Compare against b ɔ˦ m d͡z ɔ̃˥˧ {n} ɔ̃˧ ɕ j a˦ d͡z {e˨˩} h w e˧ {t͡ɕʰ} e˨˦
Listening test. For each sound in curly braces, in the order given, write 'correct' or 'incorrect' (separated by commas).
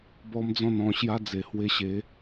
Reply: correct, correct, incorrect